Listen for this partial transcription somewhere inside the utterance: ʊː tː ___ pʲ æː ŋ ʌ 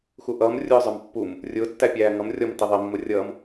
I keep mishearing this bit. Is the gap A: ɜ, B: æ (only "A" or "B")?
B